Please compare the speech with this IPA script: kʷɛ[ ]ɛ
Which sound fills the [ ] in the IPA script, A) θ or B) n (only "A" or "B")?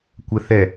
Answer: A